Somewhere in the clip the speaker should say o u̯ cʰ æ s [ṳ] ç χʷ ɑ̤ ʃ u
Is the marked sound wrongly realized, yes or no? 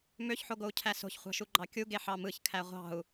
yes